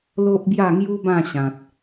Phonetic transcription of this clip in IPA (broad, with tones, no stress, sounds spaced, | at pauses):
l o˦ ʔ b j a˥˧ ŋ j u˦ b ã˥˧ ɕ ã˨ t̚